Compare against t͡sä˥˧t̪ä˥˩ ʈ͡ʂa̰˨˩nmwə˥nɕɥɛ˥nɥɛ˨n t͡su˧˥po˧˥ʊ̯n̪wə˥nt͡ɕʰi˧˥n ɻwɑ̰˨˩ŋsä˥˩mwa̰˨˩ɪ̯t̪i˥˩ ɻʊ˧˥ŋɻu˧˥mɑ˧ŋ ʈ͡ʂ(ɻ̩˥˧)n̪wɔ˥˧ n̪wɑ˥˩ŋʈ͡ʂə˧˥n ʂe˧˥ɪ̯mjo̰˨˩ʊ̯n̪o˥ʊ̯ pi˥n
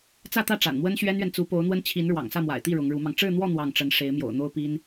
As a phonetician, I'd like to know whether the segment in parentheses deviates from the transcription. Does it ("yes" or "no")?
no